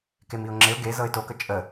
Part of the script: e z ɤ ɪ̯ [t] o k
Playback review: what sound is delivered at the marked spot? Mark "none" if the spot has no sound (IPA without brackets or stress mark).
t